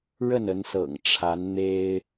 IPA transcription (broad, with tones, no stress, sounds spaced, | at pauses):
ɻ ə˥˨ n ə˨˦ n s ɤ̰˨˩ ŋ ʈ͡ʂʰ a˨˦ n n̪ e˦ ɪ̯